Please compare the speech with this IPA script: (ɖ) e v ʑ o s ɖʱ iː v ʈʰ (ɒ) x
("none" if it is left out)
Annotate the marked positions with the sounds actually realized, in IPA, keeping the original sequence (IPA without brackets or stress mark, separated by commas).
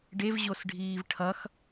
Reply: ɖ, ʌ